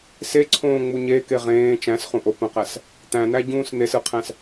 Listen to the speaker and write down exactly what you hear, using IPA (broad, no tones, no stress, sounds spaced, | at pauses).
s e ǀʰ õː ŋ͡m u ɲ e k e ʁ ẽː t͡ʃ æ̃ s χ ũ ʔ o p ə̃ q æ s | t̪ æ̃ n̪ æ ɟ ũː s n̪ e s ɯ qʰ æ̃ s